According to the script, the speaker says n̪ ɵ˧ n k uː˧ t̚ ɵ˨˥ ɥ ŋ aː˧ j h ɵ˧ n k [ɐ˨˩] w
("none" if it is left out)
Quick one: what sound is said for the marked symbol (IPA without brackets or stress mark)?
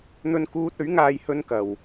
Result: ɐ˨